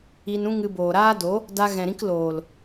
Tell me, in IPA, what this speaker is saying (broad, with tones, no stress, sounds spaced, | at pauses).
i˧ n ũ˦ ŋ ɨ˧ b oː˨ ɾ aː˦ d o˨˦ | d a˧ ɣ ɛ̃˨ ɾ ĩ˧ k l oː˨ l